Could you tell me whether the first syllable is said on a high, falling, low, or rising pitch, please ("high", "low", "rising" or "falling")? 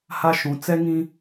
high